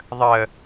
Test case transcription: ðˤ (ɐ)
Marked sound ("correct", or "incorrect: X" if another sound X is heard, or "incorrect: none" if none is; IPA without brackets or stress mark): incorrect: ə